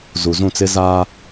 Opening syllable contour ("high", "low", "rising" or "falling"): low